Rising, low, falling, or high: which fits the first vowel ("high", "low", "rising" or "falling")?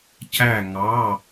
falling